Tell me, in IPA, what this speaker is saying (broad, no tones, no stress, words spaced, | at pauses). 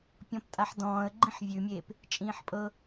pʲɔ̃ptʼaħdɔ̃ːə̯ ɡ͡ǃĩħvʲʉmʲeːp | t͡ʃʼĩːħpʼɤ